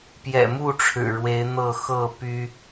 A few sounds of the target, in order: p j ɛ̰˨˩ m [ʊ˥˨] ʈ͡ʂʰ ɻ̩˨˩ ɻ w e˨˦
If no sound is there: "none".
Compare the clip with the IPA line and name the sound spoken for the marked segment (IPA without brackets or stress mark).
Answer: u˥˨